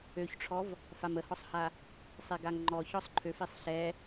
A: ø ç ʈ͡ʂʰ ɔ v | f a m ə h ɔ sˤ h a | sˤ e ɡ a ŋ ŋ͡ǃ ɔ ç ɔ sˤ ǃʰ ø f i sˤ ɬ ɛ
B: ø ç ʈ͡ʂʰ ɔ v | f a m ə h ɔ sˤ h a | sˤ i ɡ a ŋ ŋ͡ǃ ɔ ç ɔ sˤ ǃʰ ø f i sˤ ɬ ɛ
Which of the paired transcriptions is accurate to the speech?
B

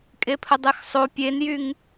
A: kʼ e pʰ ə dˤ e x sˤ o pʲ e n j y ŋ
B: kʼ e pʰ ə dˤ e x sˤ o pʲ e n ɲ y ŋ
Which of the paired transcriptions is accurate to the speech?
A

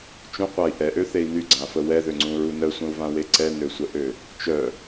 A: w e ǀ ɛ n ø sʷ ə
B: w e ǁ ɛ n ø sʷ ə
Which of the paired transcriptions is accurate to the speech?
A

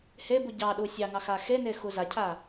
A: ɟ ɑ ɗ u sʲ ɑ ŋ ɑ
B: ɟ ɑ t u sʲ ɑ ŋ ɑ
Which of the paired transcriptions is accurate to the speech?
A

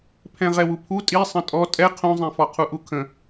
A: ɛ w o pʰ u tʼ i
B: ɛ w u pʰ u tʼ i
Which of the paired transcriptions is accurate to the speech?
B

